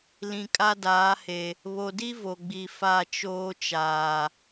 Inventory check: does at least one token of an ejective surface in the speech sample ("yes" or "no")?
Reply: yes